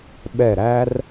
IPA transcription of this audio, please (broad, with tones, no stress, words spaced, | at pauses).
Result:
ɓɛ˧˩ɾæ˧r